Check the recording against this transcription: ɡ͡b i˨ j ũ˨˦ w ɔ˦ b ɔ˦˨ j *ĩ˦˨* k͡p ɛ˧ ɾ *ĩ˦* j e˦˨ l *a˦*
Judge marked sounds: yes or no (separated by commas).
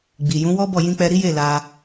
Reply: no, no, no